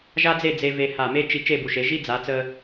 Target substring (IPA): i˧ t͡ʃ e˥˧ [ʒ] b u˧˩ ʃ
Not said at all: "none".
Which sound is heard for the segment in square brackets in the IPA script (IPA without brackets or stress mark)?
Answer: none